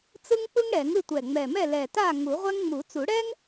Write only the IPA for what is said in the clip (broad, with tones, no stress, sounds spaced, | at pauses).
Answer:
t͡s ɯ˥ ŋ k͡p ɯ˥ ŋ ɽ ɛ˨˩˦ ŋ ɯ˥˨ tʷ ɛ˨˩ ŋ͡m ɛ˨˩ m ɛ˥˨ l ɛ˨˩ t a˥˨ ŋ u˨˩˦ ʁʷ ɛ˥ ŋ ŋ͡m u˨˩˦ t͡s u˨˩˦ ɽ ɛ˥ ŋ